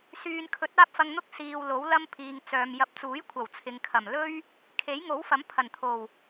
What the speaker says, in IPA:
syː˨n kʰɵ˨˥t̚aː˥p̚fɐ˧ŋn̪ʊ˥k̚ siː˨w lo˨˥wlɐ˥mpʰiː˨ŋ t͡sœː˨mjɐ˧p̚ t͡suː˨˥jkʷʰɐ˨˩w t͡sʰɪ˨ŋkʰɐ˨˩mlɵ˥ɥ | kʰe˨˥jŋo˨˥wfɐ˨˥m pʰɐ˨˩nt̪ʰo˨˩w

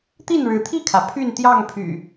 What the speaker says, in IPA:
t̪i˥˨nɻɻ̩˨˦t̪ʰi˥˨kʰä˩ pʰy˥˨nt̪jɑ˥˨ŋpʰy̰˨˩

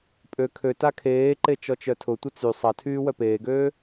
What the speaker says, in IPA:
pʼø kʰø takʰeːǃe t͡ʃɔt͡ʃœtʰʊtʷə t͡sy sˤɐtʰyː wœpeːɡøː

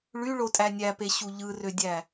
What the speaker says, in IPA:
ɭyɭotʼæ nʲæpeɕu ʎɯrødʲæ

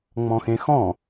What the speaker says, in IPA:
ŋ͡mɔ̃xẽxɔ̃

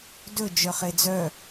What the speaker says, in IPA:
dɵ d͡ʒœχed͡zœ

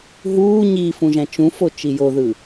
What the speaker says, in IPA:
ɦuː ɲifũʒæ̃ t͡ʃũfot͡ʃi joðɯ

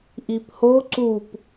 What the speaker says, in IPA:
ʔipho ǀup

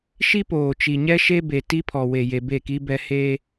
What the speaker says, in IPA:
ʃi˦poː˨ t͡ʃi˨ɲɛ˦ʃe˦be˨ ti˦pʰɔ˨we˨je˨ be˦˨ki˦bɛ˦ he˦

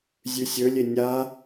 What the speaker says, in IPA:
zʲʉsʲɵlʲe nʲa

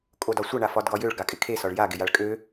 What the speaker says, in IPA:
kʼodɒsʷʌ ɳafɒdɡɒjøɭ ɡakʼɪkʰe sɒɭja ɡɪjaɭkʼø

